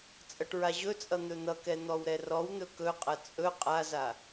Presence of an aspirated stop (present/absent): absent